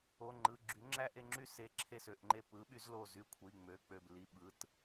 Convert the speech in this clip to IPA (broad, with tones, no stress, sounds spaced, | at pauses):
o˩˧˩ ŋ͡ǃ ɯ˩˧˩ ɡ͡ǁ y˩˥ ŋ͡ǁ æ˥˧ ʔ e˥˧ ŋ͡ǁ y˥˧ s e˩˥ ǁʰ e˧˩ s ø˩˧˩ ʔ ŋ͡ǃ e˧˩ p ɯ˩˥ ɓ y˩˥ z l o˧˩ z y˧˩ kʷʰ i˩˧˩ ŋ͡m ø˩˧˩ k͡p ø˧˩ b l i˩˧˩ ɓ ɯ˩˧˩ t